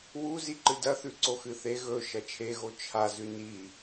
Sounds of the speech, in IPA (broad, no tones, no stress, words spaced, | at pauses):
wu ziǃɨdɐθʉ ǀoxɨθe ɣɵ ʃɐt͡ʃʰeɣo t͡ʃʰazʉ ni